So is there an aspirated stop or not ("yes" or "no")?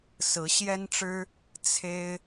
yes